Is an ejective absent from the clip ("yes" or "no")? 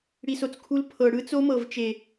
yes